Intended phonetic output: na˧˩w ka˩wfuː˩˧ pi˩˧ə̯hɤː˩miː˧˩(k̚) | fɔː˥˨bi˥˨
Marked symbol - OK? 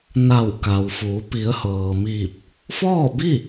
no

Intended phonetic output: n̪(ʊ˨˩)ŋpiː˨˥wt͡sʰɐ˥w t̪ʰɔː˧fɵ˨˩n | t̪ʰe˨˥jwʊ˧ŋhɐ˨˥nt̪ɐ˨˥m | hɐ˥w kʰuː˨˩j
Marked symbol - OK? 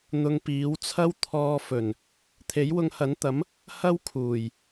no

